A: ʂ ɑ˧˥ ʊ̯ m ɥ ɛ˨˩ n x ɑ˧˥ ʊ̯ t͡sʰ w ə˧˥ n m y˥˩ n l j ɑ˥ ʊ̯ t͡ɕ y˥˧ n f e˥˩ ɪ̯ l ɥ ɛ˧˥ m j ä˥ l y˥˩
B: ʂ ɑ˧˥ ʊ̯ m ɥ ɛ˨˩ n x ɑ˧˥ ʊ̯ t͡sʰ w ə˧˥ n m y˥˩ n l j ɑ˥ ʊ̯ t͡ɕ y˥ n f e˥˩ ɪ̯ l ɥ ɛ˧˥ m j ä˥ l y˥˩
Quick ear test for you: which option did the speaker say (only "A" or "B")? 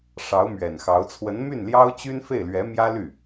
B